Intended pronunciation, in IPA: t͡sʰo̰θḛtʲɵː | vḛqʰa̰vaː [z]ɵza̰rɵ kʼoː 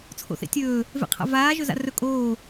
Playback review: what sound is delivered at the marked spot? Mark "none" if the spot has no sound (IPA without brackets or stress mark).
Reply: ʒ